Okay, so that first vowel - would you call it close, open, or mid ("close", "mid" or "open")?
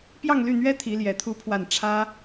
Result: open